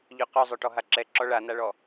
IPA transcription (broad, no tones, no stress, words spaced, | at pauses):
ʎœqœzˤœʈɔ ɦaǁɛ ǁɔɭanaɭɔ